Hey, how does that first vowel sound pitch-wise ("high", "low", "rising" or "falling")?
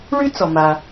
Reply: high